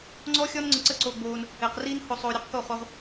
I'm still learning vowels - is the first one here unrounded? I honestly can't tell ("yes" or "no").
no